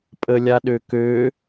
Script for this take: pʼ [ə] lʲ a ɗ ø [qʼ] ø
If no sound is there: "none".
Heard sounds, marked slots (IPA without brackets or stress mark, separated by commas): ə, k